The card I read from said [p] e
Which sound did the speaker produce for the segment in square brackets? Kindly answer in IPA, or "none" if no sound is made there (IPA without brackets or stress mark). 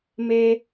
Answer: m